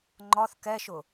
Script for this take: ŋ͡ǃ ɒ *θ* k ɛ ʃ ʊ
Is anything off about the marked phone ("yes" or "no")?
no